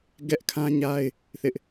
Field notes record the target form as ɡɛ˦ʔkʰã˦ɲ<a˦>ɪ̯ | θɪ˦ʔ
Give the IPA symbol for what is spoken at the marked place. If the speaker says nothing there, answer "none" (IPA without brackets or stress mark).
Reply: a˦